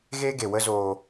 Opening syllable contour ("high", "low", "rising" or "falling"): high